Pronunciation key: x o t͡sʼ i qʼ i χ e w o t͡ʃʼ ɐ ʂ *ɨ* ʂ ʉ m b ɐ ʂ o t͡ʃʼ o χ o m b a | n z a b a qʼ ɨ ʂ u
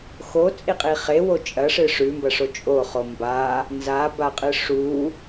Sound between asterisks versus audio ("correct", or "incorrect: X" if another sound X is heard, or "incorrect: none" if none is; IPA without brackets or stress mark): correct